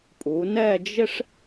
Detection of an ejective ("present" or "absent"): present